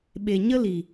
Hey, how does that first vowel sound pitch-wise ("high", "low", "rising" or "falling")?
low